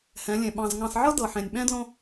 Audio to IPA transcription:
hɛ̃˨˦lʲẽ˨ ɓɑ̃˨z ŋɑ̃˨sʕɤ˦ dɤ˨ħẽ˨nʲɓɛ̃˦dlõ˦

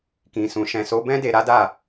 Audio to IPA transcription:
kĩ˨sũ˨ ʃɛ̃˨so˨˦bɛ̃˦ de˧ɾa˦da˦˨

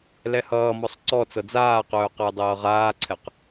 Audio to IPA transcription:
lɛhʌːmɔsˤ ǀɔ t͡sɤd͡zaːqœː qəːdˤɤːʁaːǀʰɛq

